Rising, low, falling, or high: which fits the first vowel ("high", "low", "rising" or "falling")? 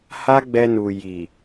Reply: high